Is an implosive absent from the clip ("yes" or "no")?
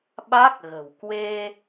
no